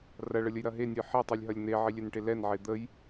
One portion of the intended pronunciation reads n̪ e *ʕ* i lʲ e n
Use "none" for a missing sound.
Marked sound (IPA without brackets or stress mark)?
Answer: ʕ